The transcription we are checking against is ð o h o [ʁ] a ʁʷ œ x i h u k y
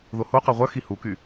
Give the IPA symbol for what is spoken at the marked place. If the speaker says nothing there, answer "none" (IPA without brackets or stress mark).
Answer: q